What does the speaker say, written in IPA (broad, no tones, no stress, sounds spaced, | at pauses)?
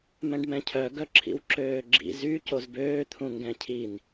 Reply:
m ɛ̃ ɖ m ɛ̃ cʰ œ ɡ œ ǁʰ ḭ w ǁ øː ɡ͡ǁ ḭ z y c o z b øː t̪ʰ ũ ŋ ɡ ɛ̃ cʰ i n